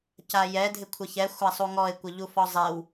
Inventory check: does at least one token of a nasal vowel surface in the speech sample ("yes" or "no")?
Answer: no